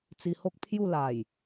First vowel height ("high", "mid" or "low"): high